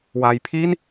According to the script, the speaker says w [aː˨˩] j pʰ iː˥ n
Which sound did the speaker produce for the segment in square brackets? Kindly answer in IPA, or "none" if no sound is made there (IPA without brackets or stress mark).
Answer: aː˧